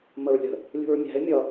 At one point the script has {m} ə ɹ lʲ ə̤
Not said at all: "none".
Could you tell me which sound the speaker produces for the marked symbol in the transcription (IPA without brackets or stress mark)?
m